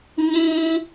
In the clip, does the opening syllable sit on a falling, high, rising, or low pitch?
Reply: high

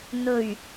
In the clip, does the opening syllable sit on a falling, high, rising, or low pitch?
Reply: low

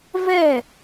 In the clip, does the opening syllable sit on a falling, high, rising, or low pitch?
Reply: falling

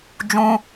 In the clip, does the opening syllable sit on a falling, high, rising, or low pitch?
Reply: high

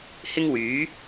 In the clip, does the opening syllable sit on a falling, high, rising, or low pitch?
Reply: high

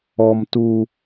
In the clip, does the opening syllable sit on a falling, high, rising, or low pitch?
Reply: low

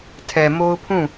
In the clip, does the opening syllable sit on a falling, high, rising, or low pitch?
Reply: low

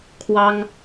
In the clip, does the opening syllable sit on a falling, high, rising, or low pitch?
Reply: high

